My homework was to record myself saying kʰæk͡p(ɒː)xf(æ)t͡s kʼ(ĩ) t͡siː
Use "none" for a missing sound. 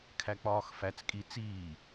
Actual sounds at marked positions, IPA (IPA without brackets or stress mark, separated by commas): ɒː, æ, i